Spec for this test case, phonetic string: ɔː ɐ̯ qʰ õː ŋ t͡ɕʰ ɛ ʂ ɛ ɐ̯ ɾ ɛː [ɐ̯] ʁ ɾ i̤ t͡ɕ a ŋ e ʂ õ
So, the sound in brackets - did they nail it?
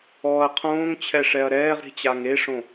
no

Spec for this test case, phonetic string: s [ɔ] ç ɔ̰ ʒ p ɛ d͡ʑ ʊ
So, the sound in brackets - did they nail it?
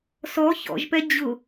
yes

